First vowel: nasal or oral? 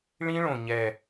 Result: nasal